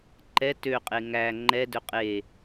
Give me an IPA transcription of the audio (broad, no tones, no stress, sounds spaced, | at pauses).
ǃ ɛ t ø qʼ e ŋ æ ŋ͡ǃ ɛ d ø qʼ e